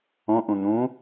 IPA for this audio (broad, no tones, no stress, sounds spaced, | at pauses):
õ ʔ ũ n̪ ũ